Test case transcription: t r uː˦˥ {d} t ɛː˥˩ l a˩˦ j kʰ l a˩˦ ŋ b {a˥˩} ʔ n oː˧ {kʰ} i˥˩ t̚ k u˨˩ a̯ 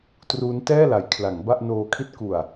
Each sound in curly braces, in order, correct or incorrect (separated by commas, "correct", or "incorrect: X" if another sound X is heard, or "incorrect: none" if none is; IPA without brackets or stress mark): incorrect: n, correct, correct